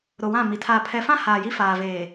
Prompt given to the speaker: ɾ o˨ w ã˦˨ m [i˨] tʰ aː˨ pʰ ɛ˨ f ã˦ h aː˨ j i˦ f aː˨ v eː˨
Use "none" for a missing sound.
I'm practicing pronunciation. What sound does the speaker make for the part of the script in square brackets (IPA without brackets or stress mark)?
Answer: i˨